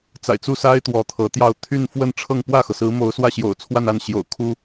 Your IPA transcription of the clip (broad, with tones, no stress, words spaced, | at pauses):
t͡sa̰˨˩ɪ̯t͡su˥˩sa˥ɪ̯ t̪wɔ˧˥t̪ʰɤ˧˥t̪jɑ˥˧ʊ̯ t̪ʰy˥˧nfwə˥˧nʈ͡ʂʰɤ˥˧ŋ pwä˥˩xɤ˩sɹ̩˧˥ mo˧˥ʊ̯swä˥˩ɕjo̰˨˩ʊ̯ t͡sʰwa˥˧na˥˩nɕjo̰˨˩ʊ̯ kʰu˥